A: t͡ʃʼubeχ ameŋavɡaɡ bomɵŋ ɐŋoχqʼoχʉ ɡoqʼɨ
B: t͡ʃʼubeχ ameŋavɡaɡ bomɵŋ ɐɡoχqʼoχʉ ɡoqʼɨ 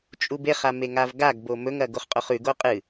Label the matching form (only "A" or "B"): B